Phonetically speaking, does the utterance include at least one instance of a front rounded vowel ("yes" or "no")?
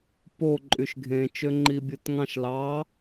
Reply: yes